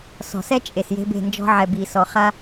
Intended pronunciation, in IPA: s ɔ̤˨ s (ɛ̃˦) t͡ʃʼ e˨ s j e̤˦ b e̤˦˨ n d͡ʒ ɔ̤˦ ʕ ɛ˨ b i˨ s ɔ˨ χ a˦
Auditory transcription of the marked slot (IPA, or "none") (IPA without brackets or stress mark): ɛ˦